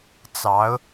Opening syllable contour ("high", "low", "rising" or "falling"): rising